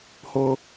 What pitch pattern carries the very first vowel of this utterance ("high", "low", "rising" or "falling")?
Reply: high